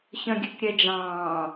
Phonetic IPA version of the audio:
ç œ̃ ɡʲ ʉ k ɾʲ ɛ d͡ʒ ɑ̃ː

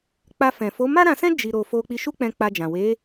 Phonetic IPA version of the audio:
k͡p a˧ f ɛ̃˨ f o˨˦ m a˦ ɾ ã˧ s ɛ̃˦ d͡ʒ i˧ ɾ o˧ f o˧ k͡p i˧ ʃ u˦ k͡p ɛ̃˧ k͡p a˧ d͡ʒ ã˨ w e˨˦

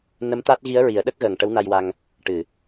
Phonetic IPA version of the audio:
n ə˧˥ m t̪ a˦˥ t̚ ɣ i˧˥ ə̯ ɹ i˨˩˦ ə̯ ɗ ə˦˥ k̚ ɣ əː˨˩ ŋ ʈ ə˧˥ w n a˧ j w a˧ ŋ | ʈ ɨ˨˩˨

